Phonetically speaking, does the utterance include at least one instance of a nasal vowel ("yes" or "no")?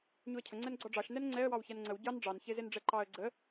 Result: no